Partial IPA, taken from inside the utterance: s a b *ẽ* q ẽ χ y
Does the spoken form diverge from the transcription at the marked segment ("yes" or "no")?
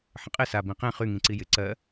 yes